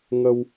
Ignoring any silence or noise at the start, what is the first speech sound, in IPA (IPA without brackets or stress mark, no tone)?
ŋ